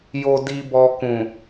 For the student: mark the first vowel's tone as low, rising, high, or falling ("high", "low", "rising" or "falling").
low